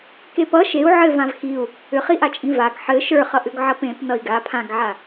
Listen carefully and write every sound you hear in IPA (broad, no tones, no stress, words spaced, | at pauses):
kepʌ ʃeu̯ ʕɘvãv xiu̯ | ʏχiʔat͡ʃʼĩ vaɡ ħɘ ʃə˞χʌʔʏɡ ʕʌpẽp nʌi̯ɡa pʰãɡʕa